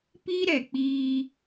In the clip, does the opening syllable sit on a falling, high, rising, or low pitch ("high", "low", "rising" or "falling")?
high